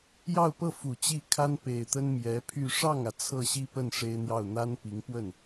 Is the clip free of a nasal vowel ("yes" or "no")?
yes